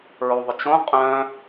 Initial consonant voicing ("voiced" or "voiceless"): voiced